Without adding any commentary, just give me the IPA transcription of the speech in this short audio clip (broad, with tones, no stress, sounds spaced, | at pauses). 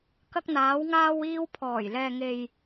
k ɐ˧ k̚ n̪ aː˨˧ w ŋ aː˧ w iː˧ w pʰ ɔː˨˩ j l ɛː˨ ŋ e˨ j